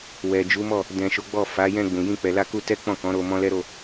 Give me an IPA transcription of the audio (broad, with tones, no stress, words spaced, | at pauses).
wɛ˨ d͡ʒu˨˦mɔ˦˨ | dɛ̃˨ ʃo˨˦ɡ͡bɔ˦˨ fa˨˦ jɛ̃˧ɡ͡bũ˨jĩ˧ k͡pɛ˨la˧ku˧tɛ˦ k͡pɔ̃˦˨kɔ̃˨˦ɾo˧ mɔ̃˦lɛ˦ɾo˦˨